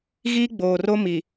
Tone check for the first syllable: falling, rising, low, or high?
high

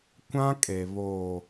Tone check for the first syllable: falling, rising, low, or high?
high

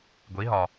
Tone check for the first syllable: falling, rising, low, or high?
rising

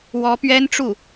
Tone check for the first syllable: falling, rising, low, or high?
rising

